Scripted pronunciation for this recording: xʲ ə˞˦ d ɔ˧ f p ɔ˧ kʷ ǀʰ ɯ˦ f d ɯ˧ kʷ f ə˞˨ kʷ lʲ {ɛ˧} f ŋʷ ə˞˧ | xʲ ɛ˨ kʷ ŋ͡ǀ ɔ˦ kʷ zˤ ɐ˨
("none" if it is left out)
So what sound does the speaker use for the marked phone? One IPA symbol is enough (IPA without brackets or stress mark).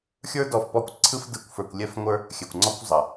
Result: ɛ˧